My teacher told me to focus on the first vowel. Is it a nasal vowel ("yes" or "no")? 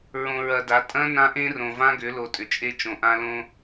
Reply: yes